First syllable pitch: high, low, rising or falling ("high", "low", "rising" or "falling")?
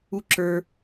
high